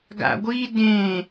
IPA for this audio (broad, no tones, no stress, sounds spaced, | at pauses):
ɡ a̰ ɡʷ i d ẽ